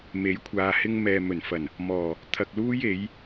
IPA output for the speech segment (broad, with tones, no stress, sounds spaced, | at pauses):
m e˨˥ j kʷʰ aː˨ h ɪ˧ ŋ m ɛː˨ m ɵ˨˩ n f ɐ˨˩ n | m ɔː˨˩ | t̪ʰ ɐ˨ k̚ l uː˧ j e˨˧ j